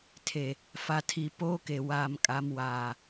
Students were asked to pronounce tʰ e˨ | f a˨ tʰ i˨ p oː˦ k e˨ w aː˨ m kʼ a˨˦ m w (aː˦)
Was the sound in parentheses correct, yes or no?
no